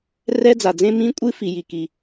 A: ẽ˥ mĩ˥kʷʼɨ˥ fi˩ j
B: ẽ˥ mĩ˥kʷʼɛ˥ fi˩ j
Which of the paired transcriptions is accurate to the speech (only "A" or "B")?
A